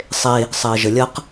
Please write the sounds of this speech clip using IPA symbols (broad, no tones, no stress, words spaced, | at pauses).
sˤe | sˤɪːʒəlʲɐq